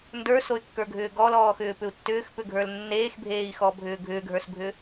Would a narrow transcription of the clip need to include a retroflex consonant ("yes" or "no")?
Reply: no